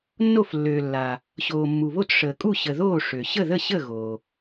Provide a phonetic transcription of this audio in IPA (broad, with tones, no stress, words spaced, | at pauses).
nːo˥˨flːøː˨ lːa˨ | ɕoː˨mːu˨βo˥˨t ʂəː˨kʼu˥˨ ɕə˨ðoː˥˨ ʂø˨ ɕə˥˨ðə˥˨ɕə˥˨ ɣoː˨